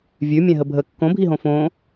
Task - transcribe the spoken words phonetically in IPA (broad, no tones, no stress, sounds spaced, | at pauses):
vʲ ʉ mʲ ɛ̃ ɦ ə bʱ ə kː õ bʱ i ɦ õ f õ